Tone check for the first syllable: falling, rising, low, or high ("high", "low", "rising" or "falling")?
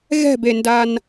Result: falling